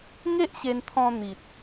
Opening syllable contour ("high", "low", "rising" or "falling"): high